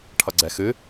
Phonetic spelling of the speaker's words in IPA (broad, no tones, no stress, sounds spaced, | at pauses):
ʈʰ ʌ ɡ͡ǀ ɛ x ɨ